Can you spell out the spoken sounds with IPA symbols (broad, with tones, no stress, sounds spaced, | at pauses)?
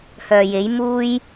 h œː˨ j e˨˥ j m uː˥ j